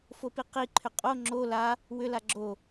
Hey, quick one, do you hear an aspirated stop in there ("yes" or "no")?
yes